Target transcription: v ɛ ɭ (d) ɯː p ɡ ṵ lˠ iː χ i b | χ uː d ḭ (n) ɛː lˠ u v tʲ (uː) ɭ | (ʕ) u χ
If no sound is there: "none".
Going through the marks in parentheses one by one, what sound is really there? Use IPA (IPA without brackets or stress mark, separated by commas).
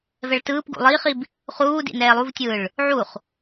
t, n, ɯː, ʕ